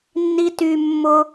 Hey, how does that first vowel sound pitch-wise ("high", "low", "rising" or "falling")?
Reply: high